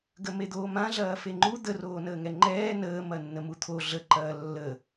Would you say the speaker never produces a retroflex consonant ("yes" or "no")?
yes